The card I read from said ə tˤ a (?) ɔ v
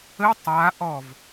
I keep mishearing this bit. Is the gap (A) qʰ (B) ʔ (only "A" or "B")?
B